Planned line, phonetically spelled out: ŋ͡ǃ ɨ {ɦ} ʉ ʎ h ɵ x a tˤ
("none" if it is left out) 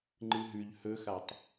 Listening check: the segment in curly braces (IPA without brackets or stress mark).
ɦ